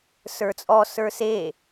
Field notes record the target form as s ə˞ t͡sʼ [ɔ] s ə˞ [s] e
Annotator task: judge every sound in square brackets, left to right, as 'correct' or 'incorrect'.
correct, correct

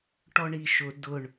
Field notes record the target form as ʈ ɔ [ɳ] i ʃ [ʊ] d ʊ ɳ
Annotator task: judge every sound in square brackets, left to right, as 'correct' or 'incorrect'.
correct, correct

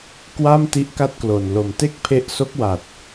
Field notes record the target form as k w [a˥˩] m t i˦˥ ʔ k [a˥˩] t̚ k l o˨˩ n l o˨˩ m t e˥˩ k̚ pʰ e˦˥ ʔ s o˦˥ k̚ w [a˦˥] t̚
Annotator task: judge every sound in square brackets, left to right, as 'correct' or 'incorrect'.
correct, incorrect: a˦˥, incorrect: a˨˩

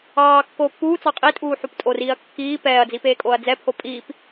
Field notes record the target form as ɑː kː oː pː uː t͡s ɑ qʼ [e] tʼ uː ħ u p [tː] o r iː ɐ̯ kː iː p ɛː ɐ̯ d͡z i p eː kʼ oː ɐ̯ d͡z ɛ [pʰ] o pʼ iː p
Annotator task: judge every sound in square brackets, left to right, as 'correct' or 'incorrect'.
incorrect: i, incorrect: tʼ, correct

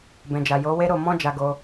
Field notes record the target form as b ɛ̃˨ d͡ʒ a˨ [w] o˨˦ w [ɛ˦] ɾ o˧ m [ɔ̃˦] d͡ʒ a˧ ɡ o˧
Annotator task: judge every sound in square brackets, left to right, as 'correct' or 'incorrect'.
incorrect: j, incorrect: e˦, correct

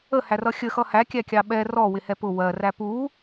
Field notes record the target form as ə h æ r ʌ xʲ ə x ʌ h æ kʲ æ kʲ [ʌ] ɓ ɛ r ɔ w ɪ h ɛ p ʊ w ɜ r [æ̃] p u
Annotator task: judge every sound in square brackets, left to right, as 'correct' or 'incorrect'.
incorrect: ɑ, incorrect: æ

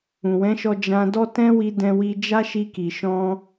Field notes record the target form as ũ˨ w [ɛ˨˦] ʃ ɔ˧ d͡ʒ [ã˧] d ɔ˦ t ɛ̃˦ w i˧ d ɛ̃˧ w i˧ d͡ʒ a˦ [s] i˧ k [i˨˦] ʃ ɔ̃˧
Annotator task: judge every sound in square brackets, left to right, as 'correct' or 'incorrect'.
incorrect: ɛ̃˨˦, correct, incorrect: ʃ, incorrect: i˨

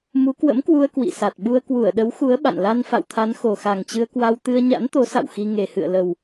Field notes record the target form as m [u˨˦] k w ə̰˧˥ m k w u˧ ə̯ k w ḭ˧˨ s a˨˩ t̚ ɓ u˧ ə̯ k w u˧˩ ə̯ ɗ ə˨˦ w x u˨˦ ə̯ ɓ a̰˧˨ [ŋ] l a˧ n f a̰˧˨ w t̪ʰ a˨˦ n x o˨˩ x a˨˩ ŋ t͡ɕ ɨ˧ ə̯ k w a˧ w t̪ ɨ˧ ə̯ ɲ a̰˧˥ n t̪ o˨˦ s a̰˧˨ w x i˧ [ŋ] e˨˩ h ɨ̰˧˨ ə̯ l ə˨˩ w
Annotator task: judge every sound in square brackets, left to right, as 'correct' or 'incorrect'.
correct, incorrect: n, correct

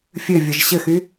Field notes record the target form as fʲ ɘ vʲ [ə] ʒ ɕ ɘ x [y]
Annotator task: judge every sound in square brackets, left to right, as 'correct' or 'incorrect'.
correct, correct

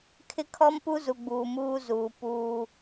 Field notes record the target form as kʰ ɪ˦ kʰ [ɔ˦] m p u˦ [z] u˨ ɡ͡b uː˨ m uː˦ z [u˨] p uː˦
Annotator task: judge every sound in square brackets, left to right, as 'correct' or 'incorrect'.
correct, correct, incorrect: uː˨

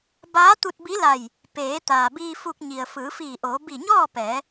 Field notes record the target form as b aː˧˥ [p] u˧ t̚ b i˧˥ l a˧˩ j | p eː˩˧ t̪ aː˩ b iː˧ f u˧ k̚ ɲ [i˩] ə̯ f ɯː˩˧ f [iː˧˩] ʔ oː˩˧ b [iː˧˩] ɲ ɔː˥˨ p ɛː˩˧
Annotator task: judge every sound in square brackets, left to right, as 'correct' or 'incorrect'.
incorrect: t̪, correct, correct, incorrect: i˧˩

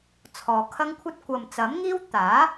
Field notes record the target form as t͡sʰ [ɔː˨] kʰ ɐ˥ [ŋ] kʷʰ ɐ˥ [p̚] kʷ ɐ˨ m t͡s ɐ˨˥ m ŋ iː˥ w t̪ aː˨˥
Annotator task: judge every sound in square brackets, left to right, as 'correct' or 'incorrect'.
correct, correct, incorrect: t̚

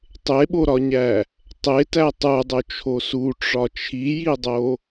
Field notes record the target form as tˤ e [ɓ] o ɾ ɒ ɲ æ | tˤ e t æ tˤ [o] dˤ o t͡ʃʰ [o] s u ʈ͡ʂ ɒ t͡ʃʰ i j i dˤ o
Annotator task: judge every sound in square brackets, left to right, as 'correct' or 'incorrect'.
correct, incorrect: u, correct

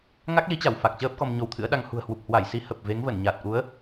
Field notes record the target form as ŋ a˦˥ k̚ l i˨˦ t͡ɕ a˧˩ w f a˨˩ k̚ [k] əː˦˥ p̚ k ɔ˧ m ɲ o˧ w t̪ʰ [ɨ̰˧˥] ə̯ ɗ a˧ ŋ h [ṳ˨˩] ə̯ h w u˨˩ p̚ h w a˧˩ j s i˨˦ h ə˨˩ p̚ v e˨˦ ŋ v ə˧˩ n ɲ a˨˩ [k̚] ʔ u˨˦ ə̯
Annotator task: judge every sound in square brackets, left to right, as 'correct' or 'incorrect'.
incorrect: t͡ɕ, correct, correct, incorrect: t̚

